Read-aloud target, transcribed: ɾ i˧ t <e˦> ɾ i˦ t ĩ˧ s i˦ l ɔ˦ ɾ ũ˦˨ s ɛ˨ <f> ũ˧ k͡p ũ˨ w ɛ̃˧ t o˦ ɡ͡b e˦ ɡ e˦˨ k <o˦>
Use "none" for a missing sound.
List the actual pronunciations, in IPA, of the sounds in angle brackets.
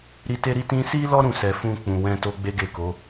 e˦, f, o˨˦

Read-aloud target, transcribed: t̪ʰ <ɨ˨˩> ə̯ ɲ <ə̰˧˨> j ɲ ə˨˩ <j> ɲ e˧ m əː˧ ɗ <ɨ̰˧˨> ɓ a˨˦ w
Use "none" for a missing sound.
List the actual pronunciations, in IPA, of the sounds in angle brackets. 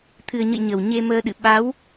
ɨ˨˩, ə̰˧˨, w, ɨ̰˧˨

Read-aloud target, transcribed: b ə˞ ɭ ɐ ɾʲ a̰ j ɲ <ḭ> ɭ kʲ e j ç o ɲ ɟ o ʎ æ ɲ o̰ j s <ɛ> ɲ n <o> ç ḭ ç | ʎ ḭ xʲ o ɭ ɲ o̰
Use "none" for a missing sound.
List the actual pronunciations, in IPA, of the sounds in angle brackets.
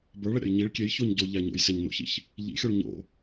i, e, o̰

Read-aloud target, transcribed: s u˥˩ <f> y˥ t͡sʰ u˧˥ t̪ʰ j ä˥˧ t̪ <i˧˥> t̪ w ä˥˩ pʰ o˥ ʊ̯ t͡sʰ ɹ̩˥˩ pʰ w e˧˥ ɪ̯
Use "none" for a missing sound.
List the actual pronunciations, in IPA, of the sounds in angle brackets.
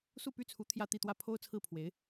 p, i˥˧

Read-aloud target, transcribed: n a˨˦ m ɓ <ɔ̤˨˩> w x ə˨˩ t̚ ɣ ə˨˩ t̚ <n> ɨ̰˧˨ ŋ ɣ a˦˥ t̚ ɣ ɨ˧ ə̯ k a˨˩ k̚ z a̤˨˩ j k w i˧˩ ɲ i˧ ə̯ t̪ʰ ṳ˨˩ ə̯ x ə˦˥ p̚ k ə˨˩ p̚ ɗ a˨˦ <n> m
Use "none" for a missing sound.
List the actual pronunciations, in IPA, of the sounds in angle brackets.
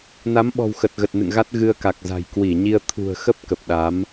ɔ̤˨˩, n, none

